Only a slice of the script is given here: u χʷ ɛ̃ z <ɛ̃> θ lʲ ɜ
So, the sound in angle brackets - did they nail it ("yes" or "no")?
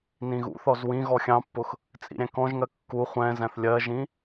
no